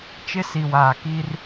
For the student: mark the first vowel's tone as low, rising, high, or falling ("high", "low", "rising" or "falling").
high